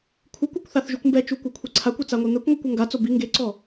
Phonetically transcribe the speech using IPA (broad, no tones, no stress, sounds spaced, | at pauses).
kʷʰ ɯ kʷ a kʷ θ a θ ʒ u kʷ m b ɛ t͡ʃ u kʷ a kʷʰ e ǀʰ a kʷ ɛ t͡s a ŋʷ e n̪ ɛ kʷ ŋʷ ɤ kʷ o ŋ ɡ a t͡s o b i ŋ ɡ e ǀ ɔ